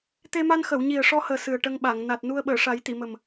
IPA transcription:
t̪ e˧ m a˧ n x ə˨˩˨ w ɲ i˨˩ ə̯ ʂ ɔ˧ h əː˨˩ s ɨ˨˩ ə̯ ʈ ə˧ ŋ ɓ a˨˩˨ ŋ n a˨˩ t̚ n u˧ ə̯ ɓ əː˨˩˨ ʂ a˨˩˦ j t̪ i˨˩˨ m ə˨˩ m

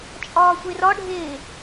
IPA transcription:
t͡ʃʼ ɒː xʷ e r ɒ ɖʱ eː

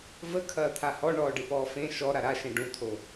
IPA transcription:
v ə kʰ ɐː t̪ʰ a h ɔ ɳ ɔː ɖ ɨ p ɔː f ẽ ʃ ɔ ɾ a ɾ a ʃ ẽ ɖ ũ t̪ʰ o

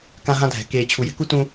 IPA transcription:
k ã˦ ɦ ã˦ dʱ ɛ̤˨ k eː˨ t͡ɕʰ u˨ j ɛ̤˦ k u˦ t ũ˦

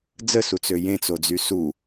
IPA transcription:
d͡z ə s u t͡s ø j ẽ t͡s o d͡z y s u

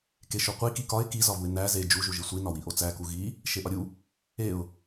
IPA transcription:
k e ʃ o qʷ i k i k ɒ ɪ̯ k i z ɒ v u ɪ̯ n æ z e d͡ʒ u ʒ u ʒ i sʷ i n ɒ w i ʔ o t͡s æ k u ɣ i | ʃ e ʔ ɒ ɾʲ u | e ʊ̯

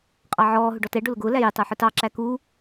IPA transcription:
qʼ ɑ ʕ ɔː ɦ ʊ ɖ ɔ t ɛ ɖ ʊ l ʊ ɡ ʊː l æ j ɪ tˤ ɛ ħ ʊ t ɑ ǁ æ k u

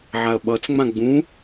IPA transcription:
ʕ a ɐ̯ ɓ ʌ t͡s ŋ͡m ã ɡ͡b ũ

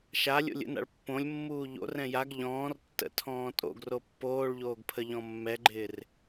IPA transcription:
ʃ a lʲ o̰ lʲ ə̰ n a̰ ɭ pː õ lʲ mː uː ʎ o̰ r ɛ̃ j a ɡ ʎ ɔ̃ː r tː ə̰ tʰ ɔ̃ː tʼ o̰ ɡ r o pː oː ɭ ʎ oː ɡ pʰ ə ʎ ɔ̃ mː ɛ ɡ͡ǃ ɪː r

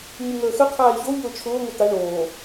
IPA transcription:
ɲ u ŋ əː x ə qʰ aː i̯ ç o ʎ ʊː t͡ʃʰ ʊː ŋʷ i t̪ a ɳ oː

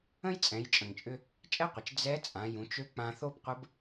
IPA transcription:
ə̃˥ j t͡sʼ ɛ̃˩˧ j t͡ʃʼ ə̃˩ ŋ t͡ʃʼ ʏ˧ | t͡ʃʼ ɛ˥ qʷ ɪ˩ t͡ʃ d͡z ɛ˧˥ t͡sʼ ã˩˧ j ũ˩˧ t͡ʃ ø˧˥ k͡p ã˧ θ o˥ b qʷ ə˧˥ b

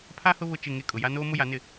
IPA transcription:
pʰ a˦ h ʊ˦ β ʊ˦˨ t͡ʃ ɪ˦˨ ŋ e˦˨ kʼ ʊ˨ j a˦ n oː˦ m ʊ˦ j a˨˦ n ɪ˦˨

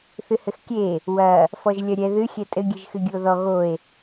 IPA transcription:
θ ɨ h ɘ x kʲ e | w ɐ | f ɔ ʒ lʲ ɐ ɾʲ ɛ ð ɨ xʲ ɛ tʼ ɘ ɡʲ ɨ ʒ x ɨ ɡʲ u o̯ ð ɔ ɣ o e̯

